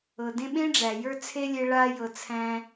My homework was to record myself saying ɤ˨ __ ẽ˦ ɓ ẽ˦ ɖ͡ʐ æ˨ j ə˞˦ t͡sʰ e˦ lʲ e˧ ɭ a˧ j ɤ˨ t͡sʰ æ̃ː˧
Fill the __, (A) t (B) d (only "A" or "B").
B